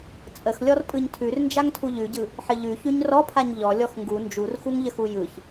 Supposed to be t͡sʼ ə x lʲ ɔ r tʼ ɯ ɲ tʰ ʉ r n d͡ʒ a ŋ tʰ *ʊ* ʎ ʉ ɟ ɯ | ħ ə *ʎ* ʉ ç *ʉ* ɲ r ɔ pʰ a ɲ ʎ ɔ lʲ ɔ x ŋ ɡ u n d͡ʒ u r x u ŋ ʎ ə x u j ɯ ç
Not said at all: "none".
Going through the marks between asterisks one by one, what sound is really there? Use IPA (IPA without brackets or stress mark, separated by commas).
u, ʎ, ʉ